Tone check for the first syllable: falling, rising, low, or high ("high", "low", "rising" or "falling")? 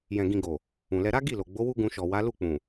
low